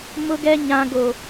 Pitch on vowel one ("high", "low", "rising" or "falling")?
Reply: high